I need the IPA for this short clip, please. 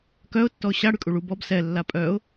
k œ ʊ̯ tː ɔ ʊ̯ ɕ a ɽ y kʼ u ɭ u b ɔ b s ɛ lː a pʼ œ ʊ̯

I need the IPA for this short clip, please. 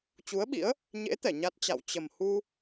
t͡ɕ u˨˦ ə̯ ɓ ḭ˧˥ ə̯ | ɲ ḛ˧˥ t̪ ɛ˧˩ ɲ a˦˥ t̚ t͡ɕ a̰˧˨ w t͡ɕ ə˨˩ m h u˧

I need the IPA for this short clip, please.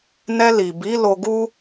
n ɛ˧ l i˨ b i˨˦ l o˧ ɡ u˦

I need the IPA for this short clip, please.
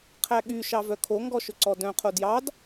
qʰ æ ɠ y ʃ ɑ v œ kʰ o ŋ ɡ ɔ ʃ ɵ ǀ ɔ d œ̃ qʰ o d j ɑ d

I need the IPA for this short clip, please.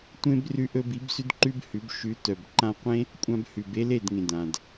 tʷ ẽ˦ b r ʉ˧ ʔ ɵ˧ b i˨˦ b s ʉ˦ d ǃ ʉ˦ b h ʉ˨˦ b ʃ ʉ˨˦ t œ˨ b ǃ ã˧ qʷ ẽ˦ | kʷʼ ã˧ b h ʉ˨ b e˦ l e˦˨ d ŋ ẽ˨ d ã˨ d

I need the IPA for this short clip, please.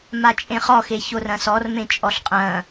m a t͡ʃʼ ẽ χ ɔ x e ç o r ɐ̃ s ɔ r m ẽ t͡ʃʼ ɔ ɬ qʼ ɐ̃

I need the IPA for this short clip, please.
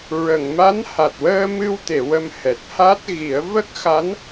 ɹ ə˨˩˨ ŋ m a˧˥ n h a˨˩ t̚ w əː˧ m ɨ˧ w t̪ e˨˩˨ w ə˧ m h ɛ˨˩ t̚ h a˦˥ t̚ ɣ i˨˩˦ ə̯ v ə˦˥ k̚ x a˧˥ n

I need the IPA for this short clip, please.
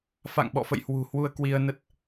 f a̰˧˨ ŋ ɓ ɔ̰˧˨ f ə̰˧˨ j h w ṳ˨˩ h w u˧ ə̯ k w i˧ ə̯ n ə˦˥ t̚

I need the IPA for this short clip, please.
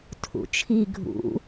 tʰ ṵ t͡ʃʰ i ɡʱ ṵ

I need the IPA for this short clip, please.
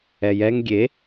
ɛ j ɛ ŋ ɡʲ e

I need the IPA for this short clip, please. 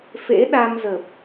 f ḛ˧˥ ɗ a˧ m z ə˨˩ p̚

